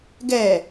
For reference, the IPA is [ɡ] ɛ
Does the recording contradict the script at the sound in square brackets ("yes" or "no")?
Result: no